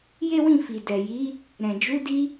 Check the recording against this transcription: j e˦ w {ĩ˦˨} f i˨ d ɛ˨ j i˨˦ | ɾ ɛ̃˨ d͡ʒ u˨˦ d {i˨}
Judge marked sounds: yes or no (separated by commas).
yes, no